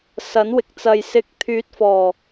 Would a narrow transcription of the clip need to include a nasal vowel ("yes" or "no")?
no